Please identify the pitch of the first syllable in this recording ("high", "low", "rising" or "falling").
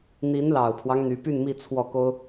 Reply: rising